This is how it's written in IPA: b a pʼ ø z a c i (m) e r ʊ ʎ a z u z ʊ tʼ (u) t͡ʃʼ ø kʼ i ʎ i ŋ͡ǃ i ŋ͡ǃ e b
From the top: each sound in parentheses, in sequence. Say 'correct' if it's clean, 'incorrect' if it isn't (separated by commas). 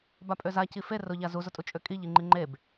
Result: incorrect, correct